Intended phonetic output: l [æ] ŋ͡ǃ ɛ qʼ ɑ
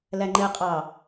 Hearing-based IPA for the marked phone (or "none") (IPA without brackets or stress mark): æ